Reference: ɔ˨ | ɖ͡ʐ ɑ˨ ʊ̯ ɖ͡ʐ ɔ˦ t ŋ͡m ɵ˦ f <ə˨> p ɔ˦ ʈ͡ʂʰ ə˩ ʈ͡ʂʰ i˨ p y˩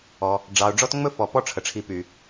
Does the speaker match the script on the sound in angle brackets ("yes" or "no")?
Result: no